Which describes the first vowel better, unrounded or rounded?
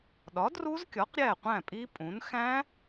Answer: rounded